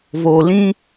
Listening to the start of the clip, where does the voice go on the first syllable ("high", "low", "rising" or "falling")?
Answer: low